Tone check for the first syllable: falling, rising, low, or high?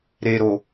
low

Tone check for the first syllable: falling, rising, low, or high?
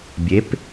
rising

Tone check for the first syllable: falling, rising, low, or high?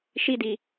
high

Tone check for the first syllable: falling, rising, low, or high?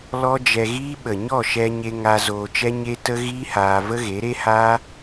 high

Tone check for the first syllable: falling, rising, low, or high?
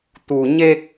low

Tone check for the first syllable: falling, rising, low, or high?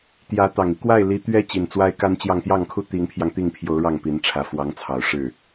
rising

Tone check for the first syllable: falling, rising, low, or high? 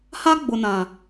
high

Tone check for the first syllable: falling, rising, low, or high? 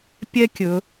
high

